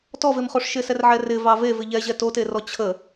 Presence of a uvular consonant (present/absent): present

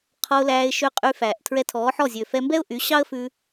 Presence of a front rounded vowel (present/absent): present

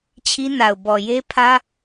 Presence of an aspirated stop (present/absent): present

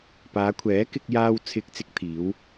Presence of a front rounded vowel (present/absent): absent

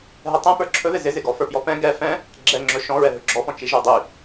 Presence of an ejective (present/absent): absent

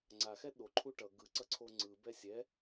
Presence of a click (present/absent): present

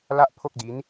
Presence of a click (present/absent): absent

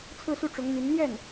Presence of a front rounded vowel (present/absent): present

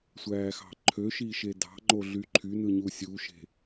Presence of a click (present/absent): present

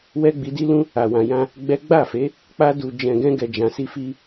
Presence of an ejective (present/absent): absent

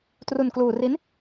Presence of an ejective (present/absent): absent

